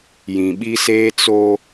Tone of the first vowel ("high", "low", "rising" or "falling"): low